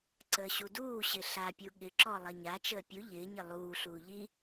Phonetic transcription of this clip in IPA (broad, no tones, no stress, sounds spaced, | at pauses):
ǀ əː ɕ u d uː ɕ ɪ ɬ a pʲ u ɠ ɪ ǁ ɔ lˠ ɐ ɲ a t͡ʃ əː pʲ u ʎ ɪː ɲ ɪ lˠ uː ɬ uː ʎ i